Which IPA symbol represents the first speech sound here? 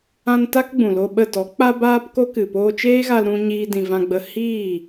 ã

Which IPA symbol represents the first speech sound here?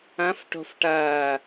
ɐ̃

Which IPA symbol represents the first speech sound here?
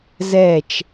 z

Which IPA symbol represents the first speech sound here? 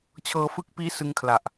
t͡ɕʰ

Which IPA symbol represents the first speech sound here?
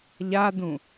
ʎ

